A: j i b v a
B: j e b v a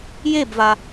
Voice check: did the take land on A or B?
B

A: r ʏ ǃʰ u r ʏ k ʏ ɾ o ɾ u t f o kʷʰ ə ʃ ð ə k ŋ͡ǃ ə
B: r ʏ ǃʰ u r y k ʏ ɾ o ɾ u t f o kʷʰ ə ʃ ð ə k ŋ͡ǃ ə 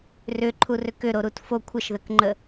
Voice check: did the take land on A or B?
A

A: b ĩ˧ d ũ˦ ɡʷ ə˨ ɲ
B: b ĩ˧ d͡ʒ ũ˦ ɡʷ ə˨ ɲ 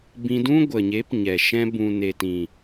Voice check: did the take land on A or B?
A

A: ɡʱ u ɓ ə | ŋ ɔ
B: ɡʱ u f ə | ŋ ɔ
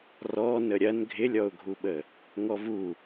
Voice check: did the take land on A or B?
A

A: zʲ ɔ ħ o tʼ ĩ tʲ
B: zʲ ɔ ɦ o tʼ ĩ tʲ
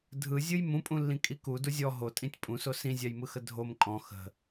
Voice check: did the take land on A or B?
B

